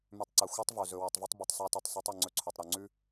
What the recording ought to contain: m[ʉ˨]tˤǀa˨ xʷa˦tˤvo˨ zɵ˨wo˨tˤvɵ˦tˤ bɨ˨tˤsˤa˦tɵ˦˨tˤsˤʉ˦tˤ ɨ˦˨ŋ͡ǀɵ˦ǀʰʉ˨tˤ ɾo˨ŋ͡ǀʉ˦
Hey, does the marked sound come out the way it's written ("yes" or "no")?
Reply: yes